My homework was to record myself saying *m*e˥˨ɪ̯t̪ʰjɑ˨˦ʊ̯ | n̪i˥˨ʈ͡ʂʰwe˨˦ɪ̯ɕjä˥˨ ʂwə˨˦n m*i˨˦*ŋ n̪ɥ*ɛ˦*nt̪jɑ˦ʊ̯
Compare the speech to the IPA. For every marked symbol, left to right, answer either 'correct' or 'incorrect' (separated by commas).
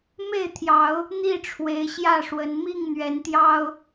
correct, incorrect, incorrect